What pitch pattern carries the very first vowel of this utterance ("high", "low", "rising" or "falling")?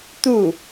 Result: falling